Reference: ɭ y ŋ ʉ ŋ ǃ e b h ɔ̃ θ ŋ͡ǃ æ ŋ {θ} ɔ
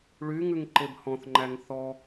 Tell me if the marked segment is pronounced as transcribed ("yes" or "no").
yes